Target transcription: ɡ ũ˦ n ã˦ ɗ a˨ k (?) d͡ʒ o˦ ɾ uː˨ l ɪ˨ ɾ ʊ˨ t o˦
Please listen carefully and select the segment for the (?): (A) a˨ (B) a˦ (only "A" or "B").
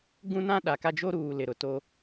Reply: B